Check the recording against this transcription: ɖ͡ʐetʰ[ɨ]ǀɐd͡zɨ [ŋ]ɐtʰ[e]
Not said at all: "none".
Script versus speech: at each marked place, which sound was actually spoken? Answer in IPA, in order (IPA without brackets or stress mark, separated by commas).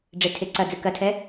e, k, ɛ